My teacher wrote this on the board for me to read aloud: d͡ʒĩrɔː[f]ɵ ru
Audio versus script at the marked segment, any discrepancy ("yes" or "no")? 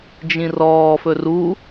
no